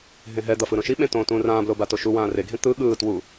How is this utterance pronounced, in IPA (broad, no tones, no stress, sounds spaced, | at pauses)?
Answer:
ɦ ẽ ɦ ɛ d̪ ʌ f ɯ ɾ õ ʃ i ɓ ẽ t õː t ũː r ãː b l o b a t o ʃ u w ãː r e ɡʱ ẽ t̪ ɯ ɠ ɯː t w u